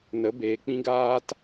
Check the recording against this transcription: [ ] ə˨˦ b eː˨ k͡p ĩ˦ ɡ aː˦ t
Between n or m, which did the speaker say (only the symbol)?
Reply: n